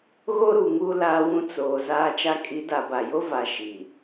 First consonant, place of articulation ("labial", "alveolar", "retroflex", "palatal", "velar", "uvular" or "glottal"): velar